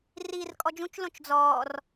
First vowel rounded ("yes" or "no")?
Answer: no